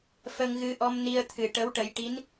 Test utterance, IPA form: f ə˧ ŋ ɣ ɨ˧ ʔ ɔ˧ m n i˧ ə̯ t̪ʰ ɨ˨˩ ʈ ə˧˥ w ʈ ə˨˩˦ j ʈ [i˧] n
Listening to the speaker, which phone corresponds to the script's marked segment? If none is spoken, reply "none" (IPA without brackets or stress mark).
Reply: i˧˥